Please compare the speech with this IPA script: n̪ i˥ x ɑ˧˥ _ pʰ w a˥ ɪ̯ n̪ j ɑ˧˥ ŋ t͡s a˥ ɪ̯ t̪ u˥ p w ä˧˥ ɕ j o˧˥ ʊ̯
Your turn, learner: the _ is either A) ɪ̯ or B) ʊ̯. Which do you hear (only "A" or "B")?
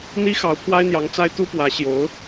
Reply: B